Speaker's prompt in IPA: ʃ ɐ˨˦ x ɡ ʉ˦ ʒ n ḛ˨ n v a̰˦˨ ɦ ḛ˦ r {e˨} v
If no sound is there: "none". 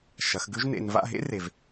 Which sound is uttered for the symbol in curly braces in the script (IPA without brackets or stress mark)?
e˨